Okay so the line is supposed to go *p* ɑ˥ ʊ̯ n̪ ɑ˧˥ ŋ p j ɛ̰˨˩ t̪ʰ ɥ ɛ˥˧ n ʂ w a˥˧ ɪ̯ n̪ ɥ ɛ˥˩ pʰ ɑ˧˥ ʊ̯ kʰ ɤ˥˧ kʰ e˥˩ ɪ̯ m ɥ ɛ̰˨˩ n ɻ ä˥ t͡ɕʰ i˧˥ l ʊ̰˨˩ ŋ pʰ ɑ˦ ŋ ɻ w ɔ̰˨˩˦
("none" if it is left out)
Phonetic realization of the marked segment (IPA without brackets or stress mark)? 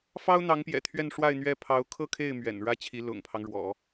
f